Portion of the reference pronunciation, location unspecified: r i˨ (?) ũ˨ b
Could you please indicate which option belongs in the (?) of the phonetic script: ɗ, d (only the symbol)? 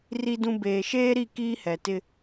d